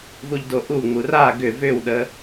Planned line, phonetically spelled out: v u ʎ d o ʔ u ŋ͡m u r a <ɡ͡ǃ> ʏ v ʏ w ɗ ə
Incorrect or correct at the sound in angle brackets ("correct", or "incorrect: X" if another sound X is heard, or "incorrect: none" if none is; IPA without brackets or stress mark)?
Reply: incorrect: ɡ